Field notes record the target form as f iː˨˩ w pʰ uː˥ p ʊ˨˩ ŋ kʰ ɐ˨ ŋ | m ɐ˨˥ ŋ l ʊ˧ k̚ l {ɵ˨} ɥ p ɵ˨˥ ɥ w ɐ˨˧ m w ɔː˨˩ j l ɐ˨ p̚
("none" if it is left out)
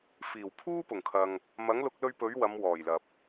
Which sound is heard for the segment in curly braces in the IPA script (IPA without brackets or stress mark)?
ɵ˧